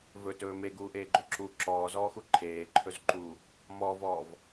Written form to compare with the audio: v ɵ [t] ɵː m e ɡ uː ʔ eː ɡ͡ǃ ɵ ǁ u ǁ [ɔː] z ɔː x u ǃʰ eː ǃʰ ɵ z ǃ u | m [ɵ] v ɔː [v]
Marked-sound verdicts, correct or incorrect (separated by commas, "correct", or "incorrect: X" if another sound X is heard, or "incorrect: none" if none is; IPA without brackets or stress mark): correct, correct, incorrect: ɔ, correct